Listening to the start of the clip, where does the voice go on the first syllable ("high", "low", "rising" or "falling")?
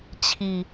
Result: low